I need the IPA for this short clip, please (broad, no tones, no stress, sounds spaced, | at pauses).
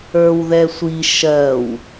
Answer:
ə˞ w ð ɛ sʷ i ʃ ɜ w